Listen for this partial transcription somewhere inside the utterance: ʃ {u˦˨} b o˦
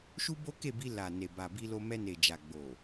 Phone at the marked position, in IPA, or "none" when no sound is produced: u˦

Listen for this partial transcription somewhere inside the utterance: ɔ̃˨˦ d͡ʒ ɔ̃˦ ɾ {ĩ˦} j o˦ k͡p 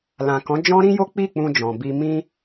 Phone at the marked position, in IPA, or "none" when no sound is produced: ĩ˦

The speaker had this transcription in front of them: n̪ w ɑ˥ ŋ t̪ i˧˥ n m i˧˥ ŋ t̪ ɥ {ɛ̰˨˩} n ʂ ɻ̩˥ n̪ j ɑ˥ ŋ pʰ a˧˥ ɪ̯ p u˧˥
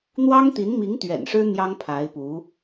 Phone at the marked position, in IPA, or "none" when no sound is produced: ɛ̰˨˩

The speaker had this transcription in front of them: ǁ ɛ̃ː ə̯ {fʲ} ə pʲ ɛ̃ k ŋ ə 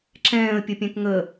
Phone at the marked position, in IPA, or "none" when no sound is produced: pʲ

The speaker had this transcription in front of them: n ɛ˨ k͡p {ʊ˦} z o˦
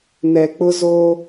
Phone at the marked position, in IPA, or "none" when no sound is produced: ʊ˦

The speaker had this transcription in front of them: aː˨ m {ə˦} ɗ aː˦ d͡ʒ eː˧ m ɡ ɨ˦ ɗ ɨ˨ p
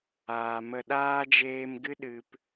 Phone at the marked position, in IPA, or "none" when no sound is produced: ə˧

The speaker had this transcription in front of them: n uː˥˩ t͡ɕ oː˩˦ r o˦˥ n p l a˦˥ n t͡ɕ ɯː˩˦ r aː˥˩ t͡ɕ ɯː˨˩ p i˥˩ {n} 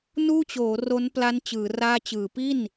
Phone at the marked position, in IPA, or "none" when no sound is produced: n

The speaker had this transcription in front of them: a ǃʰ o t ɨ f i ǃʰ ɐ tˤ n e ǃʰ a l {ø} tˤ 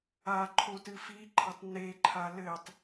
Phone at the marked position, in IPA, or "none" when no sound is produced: ɘ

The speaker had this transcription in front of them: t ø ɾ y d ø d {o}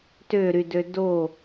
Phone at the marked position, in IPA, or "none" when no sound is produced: o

